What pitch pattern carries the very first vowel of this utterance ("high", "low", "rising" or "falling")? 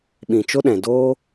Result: low